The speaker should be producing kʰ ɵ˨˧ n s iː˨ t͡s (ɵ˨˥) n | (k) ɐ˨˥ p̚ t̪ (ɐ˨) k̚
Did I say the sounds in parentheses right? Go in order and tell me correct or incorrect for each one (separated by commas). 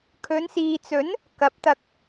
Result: correct, correct, incorrect